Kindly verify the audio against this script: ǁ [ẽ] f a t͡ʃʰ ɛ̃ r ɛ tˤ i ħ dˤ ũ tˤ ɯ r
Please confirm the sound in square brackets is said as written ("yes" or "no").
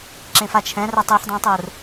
yes